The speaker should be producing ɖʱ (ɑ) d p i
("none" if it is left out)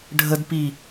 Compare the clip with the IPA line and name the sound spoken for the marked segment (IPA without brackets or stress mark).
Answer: ə